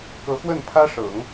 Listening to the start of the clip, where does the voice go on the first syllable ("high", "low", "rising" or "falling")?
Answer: rising